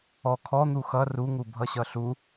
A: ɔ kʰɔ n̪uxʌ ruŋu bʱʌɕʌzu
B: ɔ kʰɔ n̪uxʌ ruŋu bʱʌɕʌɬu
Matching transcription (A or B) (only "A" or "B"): B